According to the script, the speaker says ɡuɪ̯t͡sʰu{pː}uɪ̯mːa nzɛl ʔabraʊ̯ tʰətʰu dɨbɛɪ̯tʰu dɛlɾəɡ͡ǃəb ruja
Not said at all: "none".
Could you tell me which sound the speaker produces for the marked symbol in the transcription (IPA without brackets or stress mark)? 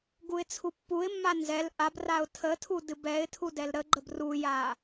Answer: pː